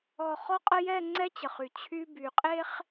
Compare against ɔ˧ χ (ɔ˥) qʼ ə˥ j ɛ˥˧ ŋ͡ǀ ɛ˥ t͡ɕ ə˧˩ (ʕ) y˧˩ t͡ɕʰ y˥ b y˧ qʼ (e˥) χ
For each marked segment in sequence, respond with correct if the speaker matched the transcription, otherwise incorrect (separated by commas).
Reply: correct, incorrect, correct